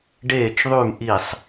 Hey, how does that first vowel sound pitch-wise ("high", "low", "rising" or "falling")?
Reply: falling